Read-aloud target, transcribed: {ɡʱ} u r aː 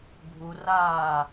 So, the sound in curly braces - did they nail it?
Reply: yes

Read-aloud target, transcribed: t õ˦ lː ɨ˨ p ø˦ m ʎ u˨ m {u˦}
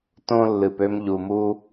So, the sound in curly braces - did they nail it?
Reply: yes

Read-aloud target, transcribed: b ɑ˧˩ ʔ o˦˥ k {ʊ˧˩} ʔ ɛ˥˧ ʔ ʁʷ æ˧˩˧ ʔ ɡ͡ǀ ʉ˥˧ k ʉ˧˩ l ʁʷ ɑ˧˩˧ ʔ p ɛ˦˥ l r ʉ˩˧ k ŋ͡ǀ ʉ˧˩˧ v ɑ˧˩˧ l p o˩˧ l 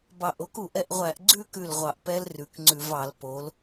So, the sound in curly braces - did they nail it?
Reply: no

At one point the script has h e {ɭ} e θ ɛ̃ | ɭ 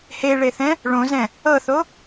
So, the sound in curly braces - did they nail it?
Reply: yes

